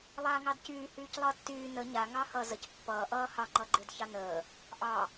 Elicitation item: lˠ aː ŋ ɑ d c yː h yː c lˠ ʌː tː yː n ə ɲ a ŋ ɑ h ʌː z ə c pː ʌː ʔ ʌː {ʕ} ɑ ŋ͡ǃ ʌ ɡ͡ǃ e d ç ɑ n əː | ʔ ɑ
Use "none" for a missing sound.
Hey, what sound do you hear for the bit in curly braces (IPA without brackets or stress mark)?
h